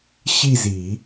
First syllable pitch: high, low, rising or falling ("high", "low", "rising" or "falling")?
falling